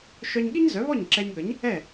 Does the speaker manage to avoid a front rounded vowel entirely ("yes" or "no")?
no